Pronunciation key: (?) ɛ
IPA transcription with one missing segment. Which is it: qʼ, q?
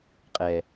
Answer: qʼ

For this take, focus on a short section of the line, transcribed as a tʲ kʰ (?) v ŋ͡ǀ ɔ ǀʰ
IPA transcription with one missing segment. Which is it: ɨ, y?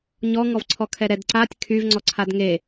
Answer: y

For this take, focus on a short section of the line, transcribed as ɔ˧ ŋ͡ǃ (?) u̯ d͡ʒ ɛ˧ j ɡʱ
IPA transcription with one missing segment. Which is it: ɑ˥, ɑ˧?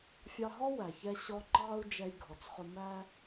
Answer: ɑ˧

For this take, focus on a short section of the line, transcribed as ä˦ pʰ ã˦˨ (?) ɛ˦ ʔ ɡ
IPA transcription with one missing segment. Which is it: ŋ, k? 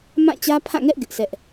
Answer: ŋ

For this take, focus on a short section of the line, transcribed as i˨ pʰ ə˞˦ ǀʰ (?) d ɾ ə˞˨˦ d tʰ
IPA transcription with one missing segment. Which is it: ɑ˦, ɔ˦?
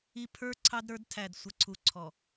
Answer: ɑ˦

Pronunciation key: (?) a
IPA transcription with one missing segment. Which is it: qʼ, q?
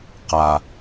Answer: q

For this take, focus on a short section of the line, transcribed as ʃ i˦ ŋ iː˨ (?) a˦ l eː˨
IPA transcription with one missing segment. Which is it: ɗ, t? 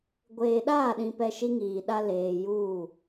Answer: ɗ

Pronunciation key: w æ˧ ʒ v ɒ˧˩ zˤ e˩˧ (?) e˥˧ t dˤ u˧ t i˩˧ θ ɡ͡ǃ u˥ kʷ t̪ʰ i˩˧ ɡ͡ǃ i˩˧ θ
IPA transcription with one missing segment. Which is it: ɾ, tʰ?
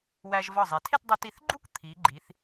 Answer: tʰ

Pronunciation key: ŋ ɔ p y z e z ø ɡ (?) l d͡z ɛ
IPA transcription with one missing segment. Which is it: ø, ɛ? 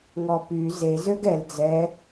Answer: ɛ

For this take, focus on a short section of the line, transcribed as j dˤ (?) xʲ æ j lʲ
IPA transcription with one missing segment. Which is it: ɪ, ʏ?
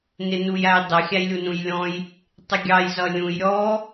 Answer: ɪ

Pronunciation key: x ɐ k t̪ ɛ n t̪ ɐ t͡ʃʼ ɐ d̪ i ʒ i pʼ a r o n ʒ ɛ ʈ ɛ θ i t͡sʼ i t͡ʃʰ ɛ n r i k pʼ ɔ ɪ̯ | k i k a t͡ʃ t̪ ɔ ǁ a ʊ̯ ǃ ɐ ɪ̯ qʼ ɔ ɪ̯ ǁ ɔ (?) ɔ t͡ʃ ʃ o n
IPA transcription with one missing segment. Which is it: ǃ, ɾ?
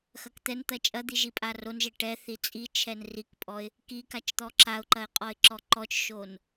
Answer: ǃ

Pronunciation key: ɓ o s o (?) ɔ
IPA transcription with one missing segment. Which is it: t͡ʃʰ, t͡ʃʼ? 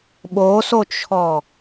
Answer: t͡ʃʰ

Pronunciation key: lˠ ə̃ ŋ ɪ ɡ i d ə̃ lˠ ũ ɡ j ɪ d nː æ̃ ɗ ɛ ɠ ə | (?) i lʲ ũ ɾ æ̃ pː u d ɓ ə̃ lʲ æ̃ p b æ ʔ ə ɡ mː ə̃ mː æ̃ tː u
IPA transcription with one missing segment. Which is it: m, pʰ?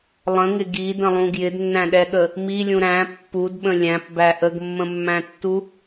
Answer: m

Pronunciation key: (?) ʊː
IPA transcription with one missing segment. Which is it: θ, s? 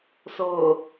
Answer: s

